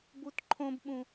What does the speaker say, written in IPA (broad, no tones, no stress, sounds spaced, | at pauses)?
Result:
b u t ǃʰ õ b ɓ ũ